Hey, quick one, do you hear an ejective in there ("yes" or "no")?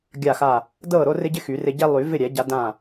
no